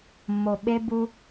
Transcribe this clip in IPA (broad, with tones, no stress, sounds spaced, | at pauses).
mː o˨ ɓ e˧ b u˧